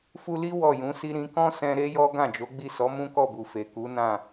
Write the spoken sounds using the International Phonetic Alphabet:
f u˧ l i˦ w ɔ˦˨ j ũ˨˦ s i˦ ɾ ĩ˧ k ɔ̃˦ s ɛ̃˧ ɾ e˦ j ɔ˦ ɡ ã˦˨ d͡ʒ o˨˦ ɡ͡b i˦˨ s ɔ˨˦ m ũ˦ k ɔ˦˨ b u˨ f e˨ k u˨˦ n ã˦˨

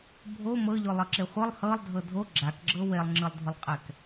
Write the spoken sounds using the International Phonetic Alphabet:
bʱ o m ɤ ʎ o lˠ ɤ ǁ e χʷ ɤ lˠ h ɤ lˠ dʱ ɤ dʱ o ɡ͡ǁ a k ɡ͡ǁ ɤ w e lˠ ŋ͡ǁ ɯ lˠ dʱ u lˠ qʼ ɛ k

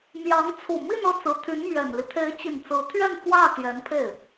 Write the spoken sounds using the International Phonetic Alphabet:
m j ɑ˧˥ ŋ t͡sʰ u˨˩ m i˥˧ n ɤ˥˩ t͡s ɹ̩˧˥ t̪ʰ y˧˥ n m ɥ ɛ˨˩ n l i˦ t̪ʰ e˧˥ ɪ̯ t͡ɕ i˨˩ n t͡s ɹ̩˧˥ t̪ʰ ɥ ɛ˥˧ n f w ä˥˩ t̪ j ɛ˧˥ n pʰ e˥˩ ɪ̯

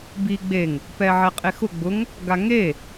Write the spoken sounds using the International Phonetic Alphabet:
b i ɡ͡b e ŋ | p ɛ ʕ ɛ qʼ e x ʊ ɡ͡b ʊ ŋ | ɡ a ŋ e

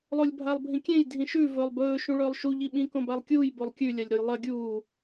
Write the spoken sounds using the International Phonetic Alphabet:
lˠ o lʲ bʱ a lˠ bʱ ĩ kʲ ẽ j dʱ ĩ ʃ ʉ v ɵː lˠ b ɵː ʃ ũ ɭ ɵː lˠ ʃ u ʎ i ɓ ĩ k õ b a lˠ kʲ uː j b o lˠ kʲ ʉ lʲ a lʲ ɾ o j lˠ ɐ ɡʲ uː

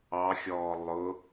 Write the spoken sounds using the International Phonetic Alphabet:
ɑ xʲ ɔː lˠ ʊ

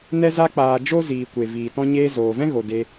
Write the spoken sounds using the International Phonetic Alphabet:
n ɛ˧ z a˧ k͡p aː˨ d͡ʒ o˦ z iː˨ kʷ e˨ v iː˨ t ɔ̃˧ ɲ eː˧ z oː˨ v ɛ̃˦ ɣ o˨ d e˧

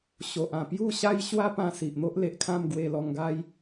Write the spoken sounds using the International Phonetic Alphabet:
ɕ o˨ ʔ ã˨˩ p j u˥˧ ɕ a˦ j ɕ w a˦ p ã˧ s i˨ ʔ n̪ o˦ ʔ l e˨ ʔ kʰ ã˥˧ m ɡ w e˧ l ɔ˧ ŋ ɡ a˦ j

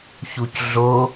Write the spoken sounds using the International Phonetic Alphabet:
ç u c ɮ o

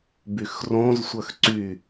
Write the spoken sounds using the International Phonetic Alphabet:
b y x r õ z sʷ œ x ǀ y

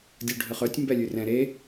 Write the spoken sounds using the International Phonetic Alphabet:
dʲ u ɖʱ ə χ œ tʲ m b ɛ lʲ ʉ r ɛ̃ ɾ e

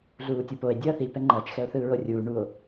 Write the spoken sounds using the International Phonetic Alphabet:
ɮ uː tʲ o p o e̯ dʲ ʌː θ i p ɛ ŋ͡ǃ ʌː t͡ʃ x ɛ o̯ θ ɯː ɹ o rʲ uː ɳ u o̯

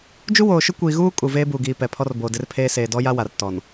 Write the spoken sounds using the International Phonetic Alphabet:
d͡ʒ u˦ w oː˨ ʃ ʊ˦ kʷ iː˨ ɣ uː˦ kʼ u˨ v eː˦ b uː˨ ɡ iː˨ p ɛ˨ pʰ ɔ˦ r b oː˨ d ɪ˦ r pʰ eː˦ s eː˨ d ɔ˦ j a˦ w a˨ r t ɔ˨ n

